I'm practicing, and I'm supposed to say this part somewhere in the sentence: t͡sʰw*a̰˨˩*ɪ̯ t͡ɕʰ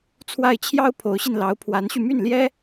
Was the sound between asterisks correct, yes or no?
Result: no